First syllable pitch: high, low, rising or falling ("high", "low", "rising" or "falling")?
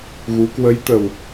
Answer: rising